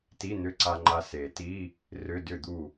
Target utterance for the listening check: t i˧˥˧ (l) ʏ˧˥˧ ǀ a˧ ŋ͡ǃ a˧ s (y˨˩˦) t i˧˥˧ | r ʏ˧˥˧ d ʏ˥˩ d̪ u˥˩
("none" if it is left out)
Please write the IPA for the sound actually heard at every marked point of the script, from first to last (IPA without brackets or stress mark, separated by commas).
n̪, e˨˩˦